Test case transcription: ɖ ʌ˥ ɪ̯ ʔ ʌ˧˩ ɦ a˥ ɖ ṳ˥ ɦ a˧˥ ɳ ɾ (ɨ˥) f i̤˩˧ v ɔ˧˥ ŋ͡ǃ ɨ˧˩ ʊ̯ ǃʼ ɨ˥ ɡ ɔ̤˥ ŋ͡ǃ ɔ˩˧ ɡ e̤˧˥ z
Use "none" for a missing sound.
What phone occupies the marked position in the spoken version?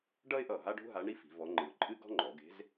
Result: i˥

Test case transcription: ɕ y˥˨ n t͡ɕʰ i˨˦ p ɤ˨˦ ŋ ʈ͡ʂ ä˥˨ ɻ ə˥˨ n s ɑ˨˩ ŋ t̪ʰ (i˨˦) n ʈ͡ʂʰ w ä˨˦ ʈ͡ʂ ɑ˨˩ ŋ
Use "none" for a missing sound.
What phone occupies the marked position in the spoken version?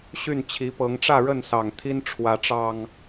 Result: i˦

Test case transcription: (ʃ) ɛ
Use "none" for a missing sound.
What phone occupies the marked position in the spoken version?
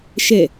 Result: ʃ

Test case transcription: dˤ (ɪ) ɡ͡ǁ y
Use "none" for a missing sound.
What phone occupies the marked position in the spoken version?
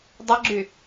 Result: ə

